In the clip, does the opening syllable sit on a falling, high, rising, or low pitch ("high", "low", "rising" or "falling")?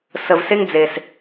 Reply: low